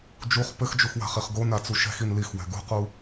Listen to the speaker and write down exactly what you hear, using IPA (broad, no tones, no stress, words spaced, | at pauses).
d͡ʒuχ pɘxd͡ʒux wa̤χiχɡona t͡suʃɛ̤xin lixwɛ̤ ɡṳqu